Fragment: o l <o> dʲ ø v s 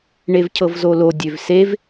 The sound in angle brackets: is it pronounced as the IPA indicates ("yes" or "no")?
yes